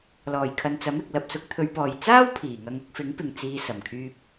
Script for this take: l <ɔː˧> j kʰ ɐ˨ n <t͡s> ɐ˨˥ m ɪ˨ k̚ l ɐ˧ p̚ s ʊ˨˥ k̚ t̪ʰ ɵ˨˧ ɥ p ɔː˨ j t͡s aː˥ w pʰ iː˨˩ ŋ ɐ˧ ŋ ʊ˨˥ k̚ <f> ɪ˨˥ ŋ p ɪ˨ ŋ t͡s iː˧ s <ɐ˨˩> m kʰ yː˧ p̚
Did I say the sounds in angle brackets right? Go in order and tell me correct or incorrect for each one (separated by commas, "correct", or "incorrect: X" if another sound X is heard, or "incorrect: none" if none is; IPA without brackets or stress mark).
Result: incorrect: ɔː˨˩, correct, correct, correct